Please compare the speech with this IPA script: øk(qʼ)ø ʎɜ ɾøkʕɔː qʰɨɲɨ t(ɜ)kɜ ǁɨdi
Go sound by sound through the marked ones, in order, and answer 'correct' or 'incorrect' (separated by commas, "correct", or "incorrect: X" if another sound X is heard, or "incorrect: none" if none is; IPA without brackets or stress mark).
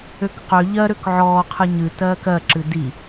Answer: incorrect: q, incorrect: ɜː